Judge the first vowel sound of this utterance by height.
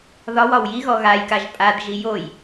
low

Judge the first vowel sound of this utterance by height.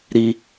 high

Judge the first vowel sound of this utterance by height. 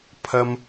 low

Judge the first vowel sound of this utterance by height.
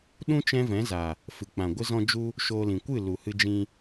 high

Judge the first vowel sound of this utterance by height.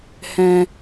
mid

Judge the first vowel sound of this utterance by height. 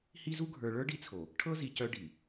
high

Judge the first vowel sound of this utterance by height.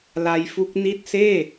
low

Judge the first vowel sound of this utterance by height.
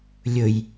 mid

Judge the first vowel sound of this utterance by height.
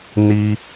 high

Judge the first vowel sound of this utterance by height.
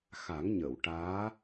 low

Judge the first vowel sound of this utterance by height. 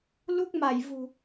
high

